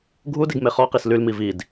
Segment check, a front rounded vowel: present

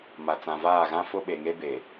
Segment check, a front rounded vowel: absent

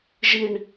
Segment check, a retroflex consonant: present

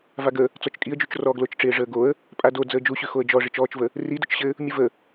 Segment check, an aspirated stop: absent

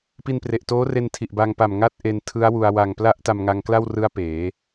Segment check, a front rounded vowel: absent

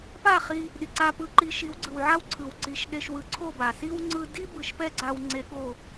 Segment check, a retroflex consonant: absent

